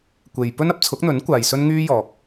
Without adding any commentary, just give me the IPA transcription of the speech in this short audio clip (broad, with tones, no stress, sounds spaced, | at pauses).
kʷ e˨ j p ɵ˥ n ɐ˥ p̚ t͡sʰ ʊ˨˥ k̚ n̪ ɵ˨˥ n kʷ aː˨ j s ɵ˥ n ŋ yː˥ j ɔː˨ k̚